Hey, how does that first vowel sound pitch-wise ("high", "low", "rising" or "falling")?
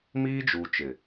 high